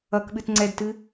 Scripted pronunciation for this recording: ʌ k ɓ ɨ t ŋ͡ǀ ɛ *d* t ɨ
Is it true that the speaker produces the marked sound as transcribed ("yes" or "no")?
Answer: yes